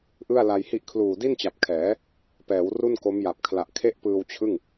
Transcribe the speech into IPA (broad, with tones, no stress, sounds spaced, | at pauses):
ʔ ɯ˥˩ a̯ l a˧ j h i˥˩ ʔ kʰ l uː˨˩ d i˥˩ n t͡ɕ a˨˩ p̚ kʰ ɛː˩˦ | p ɛː˩˦ w r u˥˩ n k o˦˥ m j a˨˩ p̚ kʰ l a˨˩ ʔ kʰ e˥˩ ʔ p ɯː˧ w t͡ɕʰ ɯ˥˩ ŋ